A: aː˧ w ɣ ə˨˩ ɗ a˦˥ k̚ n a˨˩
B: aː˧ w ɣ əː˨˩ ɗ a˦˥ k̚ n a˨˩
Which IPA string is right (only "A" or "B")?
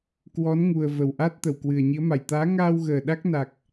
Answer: B